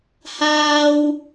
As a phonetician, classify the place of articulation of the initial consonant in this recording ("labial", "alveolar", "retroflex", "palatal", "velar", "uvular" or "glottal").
glottal